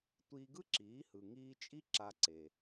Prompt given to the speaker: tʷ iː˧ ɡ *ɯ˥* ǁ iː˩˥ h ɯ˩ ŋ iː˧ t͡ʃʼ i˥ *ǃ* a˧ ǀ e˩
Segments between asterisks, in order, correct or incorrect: correct, incorrect: ǁ

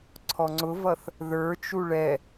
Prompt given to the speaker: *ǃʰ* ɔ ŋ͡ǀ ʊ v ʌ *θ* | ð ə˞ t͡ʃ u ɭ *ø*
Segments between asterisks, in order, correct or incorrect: incorrect: ǀʰ, correct, incorrect: ɛ

